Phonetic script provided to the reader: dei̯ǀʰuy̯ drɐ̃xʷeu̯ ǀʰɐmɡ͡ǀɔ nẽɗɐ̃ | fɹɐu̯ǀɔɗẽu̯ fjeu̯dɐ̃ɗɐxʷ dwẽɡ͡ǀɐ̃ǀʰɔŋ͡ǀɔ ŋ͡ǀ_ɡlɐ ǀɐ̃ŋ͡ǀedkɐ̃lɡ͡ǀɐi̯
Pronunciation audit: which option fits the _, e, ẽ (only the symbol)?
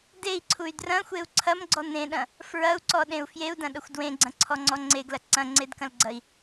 e